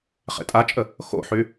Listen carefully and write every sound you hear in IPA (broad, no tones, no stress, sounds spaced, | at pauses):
χ ḛ tʼ a t͡ʃʼ ə | x o̰ ħ y